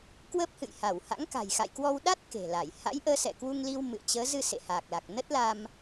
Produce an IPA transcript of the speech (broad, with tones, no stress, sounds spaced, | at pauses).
k w ə˦˥ p̚ h ɨ̰˧˨ j h a˧˩ w h a̰˧˥ ŋ k a̤˨˩ j x a̰˧˨ j k w ɔ˧ w ɗ a˦˥ t̚ k e̤˨˩ l a˧˩ j h a̰˧˥ j ʔ əː˨˦ s ɛ̰˧˨ k w u˧ ŋ l i˧ w m ɨ̰˧˨ ə̯ t͡ɕ əː˨˦ z ɨ˧ s ḛ˧˨ h aː˨˩ k̚ l a˨˩ k̚ n ə˦˥ t̚ l a˧ m